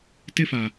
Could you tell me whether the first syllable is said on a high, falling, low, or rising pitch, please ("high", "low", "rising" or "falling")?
high